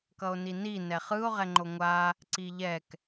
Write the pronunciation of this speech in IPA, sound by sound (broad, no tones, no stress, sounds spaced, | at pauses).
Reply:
k ʌ o̯ n i n i n ɛ χ ɯ o̯ ʁ ɛ ŋ͡ǃ o ŋʷ a | ǀ i ʎ ɛ k